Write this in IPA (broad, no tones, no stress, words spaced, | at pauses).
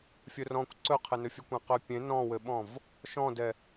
fʲɵrɔ̃kʷ ǀɵqʰɪnɵfʲɘ kʷɛ̃qøpʲẽ nɔ̃wɘɓɔ̃v | ʃɔ̃dɛ